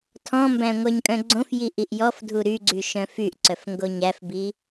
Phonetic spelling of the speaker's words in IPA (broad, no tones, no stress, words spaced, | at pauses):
tʰɔ̃mbæ̃ ŋʷœɲkʼœ̃ɡ͡ǀõfji ʔiʔjɔfdʱu ɾy ɡ͡ǀyʃœ̃fyʔǀœf ŋɡoɲæfbi